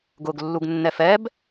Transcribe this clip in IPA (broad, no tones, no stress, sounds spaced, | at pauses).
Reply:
ɡ ʊ ɡ lː u ɡ nː ɛ f ɛ b